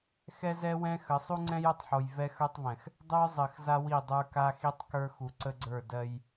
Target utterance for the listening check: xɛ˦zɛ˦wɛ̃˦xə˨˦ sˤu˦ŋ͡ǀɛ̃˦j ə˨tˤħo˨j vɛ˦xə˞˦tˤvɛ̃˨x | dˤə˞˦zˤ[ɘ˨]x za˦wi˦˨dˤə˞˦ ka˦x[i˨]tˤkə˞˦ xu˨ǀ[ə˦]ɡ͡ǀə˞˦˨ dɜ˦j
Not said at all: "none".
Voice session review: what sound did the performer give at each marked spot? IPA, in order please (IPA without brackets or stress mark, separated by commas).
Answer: ɘ˨, i˦, ə˦